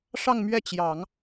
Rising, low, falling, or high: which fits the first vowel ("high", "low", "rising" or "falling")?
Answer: falling